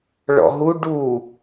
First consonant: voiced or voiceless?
voiced